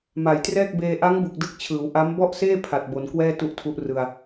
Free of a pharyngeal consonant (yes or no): yes